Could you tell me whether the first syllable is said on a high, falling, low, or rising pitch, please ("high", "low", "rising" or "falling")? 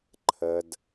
high